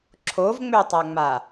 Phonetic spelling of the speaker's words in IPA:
ǁʰ o v ŋ͡m ø tˤ a ŋ͡m a

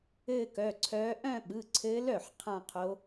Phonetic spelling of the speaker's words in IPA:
ɘː˥˧ k œ˩˧˩ ǀʰ œː˧˥ ʔ œ̃˥˧ ɓ ɯ˩˧˩ ǀʰ ɘː˧˥ l œ˥˩ ħ qʰ ã˥˧ qʰ o˧˥

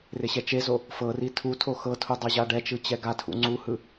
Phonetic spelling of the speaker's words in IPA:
r e ɕ ɛ t͡ʃ e z o | f ɤ r i tʰ u tʰ o x ɤ tʰ u dˤ e ʑ a ɖ ɛ t͡ʃ ɯ t͡ɕ ɛ ɡ a tʰ ṵ ŋ͡ǀ u h ɯ

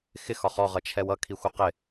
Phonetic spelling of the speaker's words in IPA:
x ɪ x ɒ χ ɔ ʁ ʌ t͡ʃʰ ɛ w ʌ kʰ i xʷ ʌ q ɪ

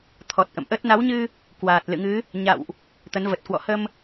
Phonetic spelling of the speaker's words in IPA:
t̪ʰ ɔ˨˩ t̚ ʔ ə̰˧˨ m ʔ ə˦˥ t̚ n a˨˦ w ɲ ɨ˧ | k w aː˨˩ t̚ l ɨ̰˧˨ ŋ ɨ˨˦ | ɲ a̰˧˨ w ʔ | t̪ ə˨˦ n v ə˨˩ t̚ k w ɔ̰˧˨ h ə˧ m

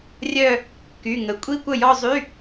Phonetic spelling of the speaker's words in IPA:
rʲ œ˥˧ | k y˩˧˩ ŋ ə˩˧˩ kʷʼ i˥˧ kʷ ə˥˩ j ɔ˥˧ zˤ y˧˥˧

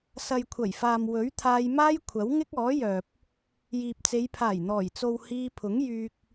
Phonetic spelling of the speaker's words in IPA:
s ɐ˨ j kʷʰ ɐ˨˩ j f aː˨ m w ɵ˨˥ ɥ t̪ʰ aː˧ j m aː˥ j kʷʰ ɐ˨˥ w ŋ ɪ˥ k̚ ɔː˨˥ j œː˨ p̚ | j iː˨ p̚ t͡s e˨˧ j pʰ aː˨˩ j n̪ ɔː˨˩ j t͡s o˨ w h iː˧ pʰ ʊ˨˥ ŋ j yː˧ k̚

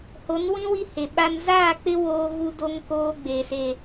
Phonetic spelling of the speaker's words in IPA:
h o˨˦ n w ĩ˦ w i˦ h e˨ ɓ a˦ n z aː˦˨ k͡p ɪ˦ w oː˦ ɣ u˦ d o˦ ŋ k oː˦ ɡ͡b e˨ s e˨

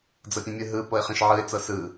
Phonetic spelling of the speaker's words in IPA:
d͡z ɤ pʲ ũ mʲ ɯ ɦ ɯ p ɤ ɪ̯ χ ẽ ʃ ʕ ɯ ɪ̯ t͡s ɤ s ɯ

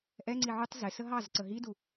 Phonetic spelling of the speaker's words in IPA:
ʔ ɛ ŋ͡ǀ i ʕ u tˤ z ɪ s ə ɦ ɑ z ǀ ə ɦ i d u

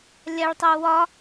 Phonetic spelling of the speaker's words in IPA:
lʲ a ɭ tˤ u w ɒ

